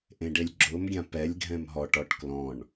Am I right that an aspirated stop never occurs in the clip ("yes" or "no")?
yes